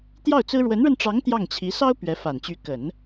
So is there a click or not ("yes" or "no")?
no